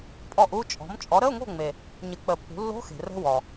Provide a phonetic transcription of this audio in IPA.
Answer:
pʼ ɔ˥˩ ʔ u˧˥˧ t͡ʃʼ ɔ̤˩˥ m t͡ʃʼ ɔ˩˥ ɾ ə˧˥˧ ʊ̯ ŋ o̤˥˩ ŋ͡m e˩ | ɲ ə˨˩˦ k͡p ə˨˩˦ pː ṳ˩˥ lː o̤˧˥˧ x e̤˩ r ə̤˧˥˧ w ɔ˩

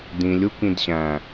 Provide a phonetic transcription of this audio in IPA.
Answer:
d ĩ lʲ u k ĩ d ɕ æ̃

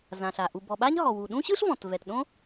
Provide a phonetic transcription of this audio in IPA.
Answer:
z ã˩ ɬ a˩ ʔ u˩ b ɔ˩ ɓ a˥ ɲ ɦ ɔ˩ w u˩ ɗ ũ˥ ɕ ɯ˥ ɬ v ɔ̃˩ t v ɛ˩ t ɗ õ˥

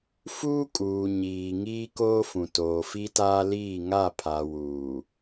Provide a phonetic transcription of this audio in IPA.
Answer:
f uː˦ kʼ uː˨ ɲ iː˨ ŋ iː˦ k oː˦ f ũ˨ t oː˨ f i˦ t aː˦ l iː˦˨ ŋ a˦˨ pʰ a˨ w uː˨

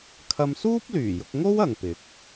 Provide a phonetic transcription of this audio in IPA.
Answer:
kʰ ɐ˧ m s uː˥ p̚ l yː˨˩ j ʊ˧ k̚ ŋ o˥ w ɐ˨ ŋ p ɪ˨˥ k̚

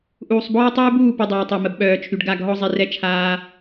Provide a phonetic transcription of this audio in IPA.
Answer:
ʔ uː˨ sˤ b ɔː˦ tˤ uː˦ b uː˦˨ p y˨ dˤ œː˨ tˤ œ˨ m ə˨ b ɓ œː˨ t͡ʃʰ y˨ ɖ ɡ a˦˨ ɡ ɦ ɔ˦ zˤ i˨ r ɛ˦ t͡ʃʰ aː˦

